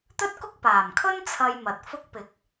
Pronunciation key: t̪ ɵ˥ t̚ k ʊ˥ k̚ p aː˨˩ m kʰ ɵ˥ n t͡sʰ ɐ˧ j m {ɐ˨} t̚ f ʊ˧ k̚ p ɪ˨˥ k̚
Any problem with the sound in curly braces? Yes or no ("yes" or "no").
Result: no